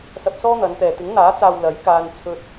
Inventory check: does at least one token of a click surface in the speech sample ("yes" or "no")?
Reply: no